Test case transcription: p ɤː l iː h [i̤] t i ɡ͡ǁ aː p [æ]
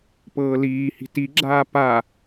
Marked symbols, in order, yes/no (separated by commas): yes, no